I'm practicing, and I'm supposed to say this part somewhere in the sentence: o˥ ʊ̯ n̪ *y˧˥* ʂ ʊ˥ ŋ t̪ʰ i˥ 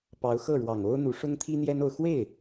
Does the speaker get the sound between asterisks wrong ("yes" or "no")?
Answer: yes